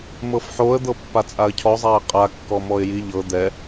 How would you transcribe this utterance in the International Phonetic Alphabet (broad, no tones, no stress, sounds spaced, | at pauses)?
m ɤ f ħ o ə̯ d̪ ɤ pː a t͡sʼ a ə̯ cʰ ɔ zˤ a ɪ̯ qʼ a kː ɔ m ɔ ɪ̯ j i ʎ ɤ d̪ ɛ